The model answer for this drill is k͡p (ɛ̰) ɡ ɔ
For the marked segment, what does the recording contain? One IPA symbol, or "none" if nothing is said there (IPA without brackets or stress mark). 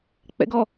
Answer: ɛ̰